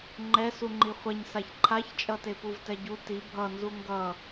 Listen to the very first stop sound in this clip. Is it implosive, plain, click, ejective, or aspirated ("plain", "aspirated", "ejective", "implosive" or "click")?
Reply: click